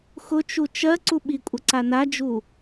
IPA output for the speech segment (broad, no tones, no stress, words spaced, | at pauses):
xʊt͡ʃu t͡ʃɜ ǀuɓikʷʼə ǀanad͡ʒu